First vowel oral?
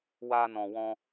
yes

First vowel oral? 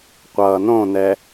yes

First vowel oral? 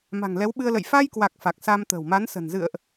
yes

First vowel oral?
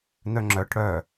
yes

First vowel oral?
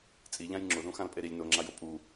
yes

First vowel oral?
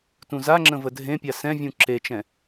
no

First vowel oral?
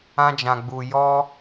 no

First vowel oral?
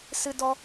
yes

